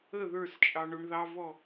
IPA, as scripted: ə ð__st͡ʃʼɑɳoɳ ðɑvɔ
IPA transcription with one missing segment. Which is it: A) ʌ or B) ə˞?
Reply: B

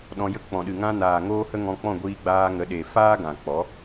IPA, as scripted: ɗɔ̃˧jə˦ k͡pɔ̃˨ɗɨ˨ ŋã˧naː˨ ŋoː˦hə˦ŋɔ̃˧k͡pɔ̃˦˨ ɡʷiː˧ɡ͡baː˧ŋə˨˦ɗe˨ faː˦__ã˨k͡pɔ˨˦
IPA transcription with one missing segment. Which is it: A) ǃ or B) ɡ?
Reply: B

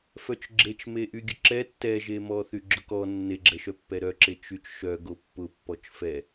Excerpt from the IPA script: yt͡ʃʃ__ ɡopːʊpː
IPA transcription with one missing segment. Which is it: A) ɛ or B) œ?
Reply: B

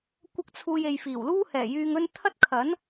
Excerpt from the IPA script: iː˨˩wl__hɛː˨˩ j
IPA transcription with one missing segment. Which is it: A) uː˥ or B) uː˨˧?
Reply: A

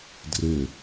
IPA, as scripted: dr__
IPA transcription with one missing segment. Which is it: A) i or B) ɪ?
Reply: B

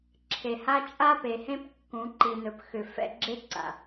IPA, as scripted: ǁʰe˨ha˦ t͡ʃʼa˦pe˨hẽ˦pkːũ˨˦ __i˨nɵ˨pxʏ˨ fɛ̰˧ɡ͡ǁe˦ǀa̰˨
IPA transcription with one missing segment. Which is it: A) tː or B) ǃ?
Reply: B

